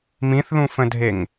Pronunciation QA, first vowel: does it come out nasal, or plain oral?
nasal